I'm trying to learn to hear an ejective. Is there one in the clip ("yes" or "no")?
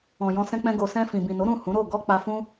no